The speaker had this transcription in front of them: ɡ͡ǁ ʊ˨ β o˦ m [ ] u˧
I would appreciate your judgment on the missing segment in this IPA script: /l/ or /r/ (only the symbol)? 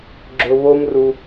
r